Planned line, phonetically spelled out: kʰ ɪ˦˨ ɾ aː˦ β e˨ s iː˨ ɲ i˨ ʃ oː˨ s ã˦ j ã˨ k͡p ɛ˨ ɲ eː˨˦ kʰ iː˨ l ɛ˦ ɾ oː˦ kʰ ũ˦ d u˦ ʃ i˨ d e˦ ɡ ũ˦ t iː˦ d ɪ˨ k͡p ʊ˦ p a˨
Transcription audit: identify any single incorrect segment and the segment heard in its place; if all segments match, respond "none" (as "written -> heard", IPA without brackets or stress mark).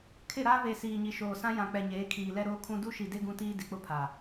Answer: p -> pʰ